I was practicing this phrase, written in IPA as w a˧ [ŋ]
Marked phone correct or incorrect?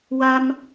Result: incorrect